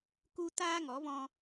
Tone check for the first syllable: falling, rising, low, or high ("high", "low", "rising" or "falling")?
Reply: high